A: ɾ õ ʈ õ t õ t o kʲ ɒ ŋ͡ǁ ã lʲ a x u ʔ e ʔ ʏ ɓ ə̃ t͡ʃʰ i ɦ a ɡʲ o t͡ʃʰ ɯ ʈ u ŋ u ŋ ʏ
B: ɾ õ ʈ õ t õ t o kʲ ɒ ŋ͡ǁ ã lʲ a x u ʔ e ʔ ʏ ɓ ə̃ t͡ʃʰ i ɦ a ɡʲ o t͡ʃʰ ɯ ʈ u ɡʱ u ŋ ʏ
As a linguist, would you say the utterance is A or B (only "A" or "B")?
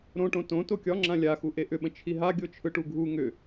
B